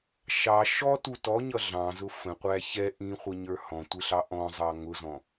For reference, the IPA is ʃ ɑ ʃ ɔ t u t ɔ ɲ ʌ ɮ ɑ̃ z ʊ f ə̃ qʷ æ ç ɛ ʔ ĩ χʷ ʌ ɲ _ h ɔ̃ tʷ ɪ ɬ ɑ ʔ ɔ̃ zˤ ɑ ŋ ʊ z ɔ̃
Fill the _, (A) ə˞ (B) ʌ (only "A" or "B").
A